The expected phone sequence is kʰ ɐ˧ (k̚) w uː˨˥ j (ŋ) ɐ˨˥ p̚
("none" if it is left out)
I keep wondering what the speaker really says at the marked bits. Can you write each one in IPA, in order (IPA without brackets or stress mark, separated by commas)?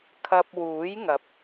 p̚, ŋ